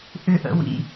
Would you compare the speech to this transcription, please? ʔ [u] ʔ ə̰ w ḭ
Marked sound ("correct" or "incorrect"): incorrect